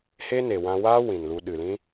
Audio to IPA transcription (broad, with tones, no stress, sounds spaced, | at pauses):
h e˦ n e˨ w ã˧ w aː˦ w ĩ˨ n l u˧ ɗ ɨ˨ l ĩ˦